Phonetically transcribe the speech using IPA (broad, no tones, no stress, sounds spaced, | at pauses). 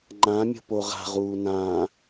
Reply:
ŋ͡ǃ ã mʲ o̤ p o ʁ a̤ ʁ uː n ã